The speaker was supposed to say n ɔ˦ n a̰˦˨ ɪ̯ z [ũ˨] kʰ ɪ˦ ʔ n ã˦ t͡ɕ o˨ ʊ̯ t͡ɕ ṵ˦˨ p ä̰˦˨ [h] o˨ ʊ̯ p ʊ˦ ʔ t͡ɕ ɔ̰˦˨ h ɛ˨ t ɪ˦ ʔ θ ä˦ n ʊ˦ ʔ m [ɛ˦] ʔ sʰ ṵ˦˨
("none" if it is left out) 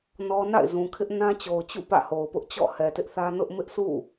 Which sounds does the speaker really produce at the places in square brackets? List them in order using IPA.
ũ˨, h, ɪ˦

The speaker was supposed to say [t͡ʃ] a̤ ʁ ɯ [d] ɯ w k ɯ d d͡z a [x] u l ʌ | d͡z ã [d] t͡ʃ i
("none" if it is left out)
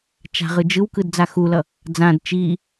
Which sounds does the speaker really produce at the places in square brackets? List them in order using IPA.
t͡ʃ, d͡ʒ, x, d

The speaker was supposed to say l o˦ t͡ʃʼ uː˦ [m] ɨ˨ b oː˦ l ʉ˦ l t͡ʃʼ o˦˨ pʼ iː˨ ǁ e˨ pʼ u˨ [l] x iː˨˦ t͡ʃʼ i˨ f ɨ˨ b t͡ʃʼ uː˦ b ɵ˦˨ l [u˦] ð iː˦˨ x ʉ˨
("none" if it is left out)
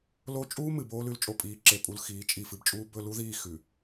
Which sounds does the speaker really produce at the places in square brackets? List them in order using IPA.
m, l, u˦

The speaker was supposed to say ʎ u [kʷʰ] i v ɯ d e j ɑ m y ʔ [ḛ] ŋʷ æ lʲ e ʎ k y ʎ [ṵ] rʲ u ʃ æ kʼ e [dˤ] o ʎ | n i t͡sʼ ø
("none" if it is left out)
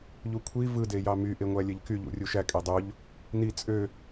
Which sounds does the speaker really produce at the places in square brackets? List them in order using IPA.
kʷʰ, e, ṵ, dˤ

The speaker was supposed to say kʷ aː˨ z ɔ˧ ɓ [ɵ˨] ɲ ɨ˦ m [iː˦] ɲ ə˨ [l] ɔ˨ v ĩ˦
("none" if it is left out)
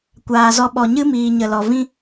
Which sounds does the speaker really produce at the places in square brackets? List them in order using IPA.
ɔ˨, iː˨, l

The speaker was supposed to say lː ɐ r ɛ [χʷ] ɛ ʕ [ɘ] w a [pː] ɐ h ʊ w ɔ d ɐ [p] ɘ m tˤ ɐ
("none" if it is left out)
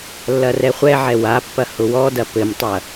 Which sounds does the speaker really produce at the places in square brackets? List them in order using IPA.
χʷ, ɛ, pː, p

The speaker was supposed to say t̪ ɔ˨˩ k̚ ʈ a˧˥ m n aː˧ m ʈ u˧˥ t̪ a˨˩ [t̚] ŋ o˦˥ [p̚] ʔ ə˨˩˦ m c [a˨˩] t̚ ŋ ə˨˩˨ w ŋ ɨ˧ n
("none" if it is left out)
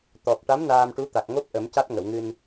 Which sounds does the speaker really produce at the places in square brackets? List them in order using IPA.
k̚, p̚, a˦˥

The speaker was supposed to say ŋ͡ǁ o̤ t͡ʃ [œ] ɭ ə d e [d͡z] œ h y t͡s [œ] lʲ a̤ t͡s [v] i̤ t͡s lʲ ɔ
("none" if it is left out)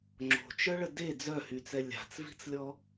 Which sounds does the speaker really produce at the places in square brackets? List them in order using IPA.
œ, d͡z, ɛ, v

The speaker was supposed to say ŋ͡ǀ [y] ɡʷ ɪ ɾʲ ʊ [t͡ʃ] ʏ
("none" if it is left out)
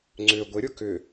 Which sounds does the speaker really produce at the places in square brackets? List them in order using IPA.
ʏ, k

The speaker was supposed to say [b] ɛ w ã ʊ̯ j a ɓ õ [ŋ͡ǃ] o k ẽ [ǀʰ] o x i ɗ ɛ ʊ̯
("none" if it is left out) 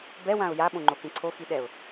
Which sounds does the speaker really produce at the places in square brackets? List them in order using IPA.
b, ŋ͡ǃ, ǀʰ

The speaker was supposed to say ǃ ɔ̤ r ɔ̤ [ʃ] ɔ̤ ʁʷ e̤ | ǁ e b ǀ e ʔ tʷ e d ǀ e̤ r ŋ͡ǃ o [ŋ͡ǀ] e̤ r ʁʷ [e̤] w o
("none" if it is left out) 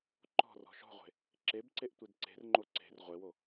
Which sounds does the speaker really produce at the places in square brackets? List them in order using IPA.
ʃ, ǀ, e

